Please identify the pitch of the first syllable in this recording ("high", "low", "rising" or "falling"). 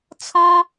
high